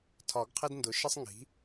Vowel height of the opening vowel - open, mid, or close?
open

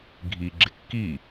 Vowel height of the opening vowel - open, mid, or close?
close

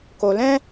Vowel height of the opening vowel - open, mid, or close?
mid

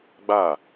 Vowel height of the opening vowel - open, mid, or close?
open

